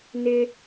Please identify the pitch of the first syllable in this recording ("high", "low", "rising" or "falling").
high